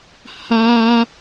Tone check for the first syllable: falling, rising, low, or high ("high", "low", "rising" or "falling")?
high